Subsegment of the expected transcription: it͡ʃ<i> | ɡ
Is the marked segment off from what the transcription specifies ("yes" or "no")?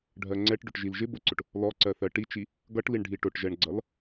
no